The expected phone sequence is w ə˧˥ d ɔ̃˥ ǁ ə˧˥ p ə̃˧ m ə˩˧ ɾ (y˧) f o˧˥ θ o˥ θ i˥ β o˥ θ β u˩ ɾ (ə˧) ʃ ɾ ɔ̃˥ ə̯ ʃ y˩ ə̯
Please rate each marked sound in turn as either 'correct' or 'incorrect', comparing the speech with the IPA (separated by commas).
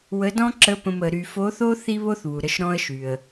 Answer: correct, correct